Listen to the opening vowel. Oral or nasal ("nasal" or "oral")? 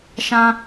nasal